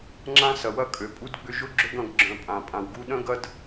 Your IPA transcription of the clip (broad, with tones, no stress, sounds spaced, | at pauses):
ŋ͡ǁ ã˦ s ɐ˨ w ɐ˦ kʼ ø˨ pʼ u˧ d ɡ͡b ʏ˧ ʒ ʊ˦ ɡ͡ǁ ʏ˦ ɡ ɐ̃˧ ɡ ɡ͡ǁ œ̃˨ pʼ ã˨ pʼ ã˨ w ɡ u˧ ɗ œ̃˦ ɡ ɐ˦ d